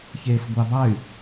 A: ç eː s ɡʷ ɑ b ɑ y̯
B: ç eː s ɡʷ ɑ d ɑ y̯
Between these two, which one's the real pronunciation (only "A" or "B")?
A